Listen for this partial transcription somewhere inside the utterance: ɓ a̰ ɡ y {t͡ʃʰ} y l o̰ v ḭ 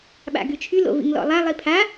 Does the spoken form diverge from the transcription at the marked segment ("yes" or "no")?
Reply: no